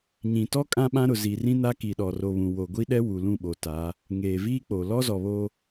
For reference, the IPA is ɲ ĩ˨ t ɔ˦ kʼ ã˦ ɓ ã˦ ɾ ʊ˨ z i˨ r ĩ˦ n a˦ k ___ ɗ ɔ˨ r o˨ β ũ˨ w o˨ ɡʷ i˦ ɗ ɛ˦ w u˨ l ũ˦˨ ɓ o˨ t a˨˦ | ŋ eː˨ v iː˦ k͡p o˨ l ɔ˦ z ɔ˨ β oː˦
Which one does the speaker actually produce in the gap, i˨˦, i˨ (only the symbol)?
i˨